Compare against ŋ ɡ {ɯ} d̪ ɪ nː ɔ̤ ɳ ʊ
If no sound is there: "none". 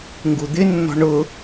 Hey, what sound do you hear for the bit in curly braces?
u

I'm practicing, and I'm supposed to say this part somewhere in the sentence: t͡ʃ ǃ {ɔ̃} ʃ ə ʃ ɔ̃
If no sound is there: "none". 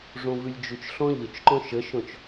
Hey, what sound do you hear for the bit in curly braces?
ɔ̃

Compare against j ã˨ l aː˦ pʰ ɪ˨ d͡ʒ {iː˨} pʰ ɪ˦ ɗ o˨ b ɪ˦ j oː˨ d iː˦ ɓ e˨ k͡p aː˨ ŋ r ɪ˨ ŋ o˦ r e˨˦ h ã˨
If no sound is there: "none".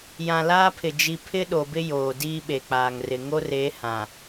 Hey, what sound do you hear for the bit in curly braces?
i˨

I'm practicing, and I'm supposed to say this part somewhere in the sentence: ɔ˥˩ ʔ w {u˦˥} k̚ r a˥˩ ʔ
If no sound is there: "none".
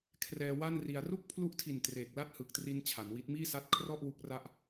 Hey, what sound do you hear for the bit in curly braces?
u˦˥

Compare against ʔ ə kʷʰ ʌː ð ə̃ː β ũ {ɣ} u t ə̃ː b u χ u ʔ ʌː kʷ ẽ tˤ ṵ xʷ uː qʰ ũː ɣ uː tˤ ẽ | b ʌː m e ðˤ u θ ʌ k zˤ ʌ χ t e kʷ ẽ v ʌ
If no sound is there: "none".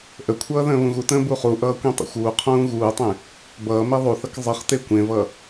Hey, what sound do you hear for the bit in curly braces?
ɣ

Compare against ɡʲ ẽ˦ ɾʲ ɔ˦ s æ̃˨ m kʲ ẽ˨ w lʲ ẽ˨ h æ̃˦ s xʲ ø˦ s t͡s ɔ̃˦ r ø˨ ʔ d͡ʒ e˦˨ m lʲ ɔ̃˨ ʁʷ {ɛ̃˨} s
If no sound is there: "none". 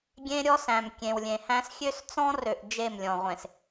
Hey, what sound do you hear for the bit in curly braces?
ẽ˨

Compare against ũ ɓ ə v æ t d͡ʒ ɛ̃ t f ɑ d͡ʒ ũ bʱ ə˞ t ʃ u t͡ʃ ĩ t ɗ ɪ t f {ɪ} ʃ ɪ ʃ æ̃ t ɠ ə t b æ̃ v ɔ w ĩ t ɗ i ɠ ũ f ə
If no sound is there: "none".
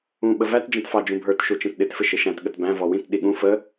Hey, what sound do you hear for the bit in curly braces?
ɪ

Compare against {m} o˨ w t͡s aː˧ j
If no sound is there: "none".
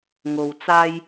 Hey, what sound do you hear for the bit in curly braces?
ŋ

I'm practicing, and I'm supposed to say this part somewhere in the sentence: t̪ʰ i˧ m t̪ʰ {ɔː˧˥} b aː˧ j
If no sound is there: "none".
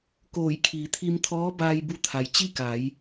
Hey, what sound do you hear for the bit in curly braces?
ɔː˧˥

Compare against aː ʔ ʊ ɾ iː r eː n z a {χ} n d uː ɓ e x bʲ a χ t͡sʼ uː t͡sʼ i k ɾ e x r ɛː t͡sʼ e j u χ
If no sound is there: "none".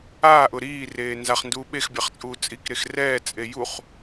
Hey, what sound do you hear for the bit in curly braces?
χ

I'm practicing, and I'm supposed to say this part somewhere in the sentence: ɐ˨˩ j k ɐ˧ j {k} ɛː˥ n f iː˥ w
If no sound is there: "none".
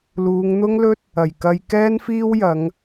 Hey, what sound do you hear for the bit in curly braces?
k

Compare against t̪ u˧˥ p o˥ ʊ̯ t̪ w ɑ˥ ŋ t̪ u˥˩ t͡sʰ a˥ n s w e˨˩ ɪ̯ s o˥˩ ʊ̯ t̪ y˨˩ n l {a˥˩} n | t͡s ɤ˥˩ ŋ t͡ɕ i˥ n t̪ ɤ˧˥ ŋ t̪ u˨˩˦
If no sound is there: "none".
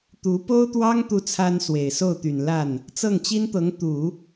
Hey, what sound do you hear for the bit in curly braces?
a˥˩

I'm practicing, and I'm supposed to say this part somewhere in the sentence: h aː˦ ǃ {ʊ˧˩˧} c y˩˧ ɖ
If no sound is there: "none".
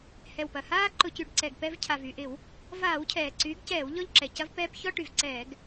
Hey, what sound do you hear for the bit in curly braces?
ʊ˧˩˧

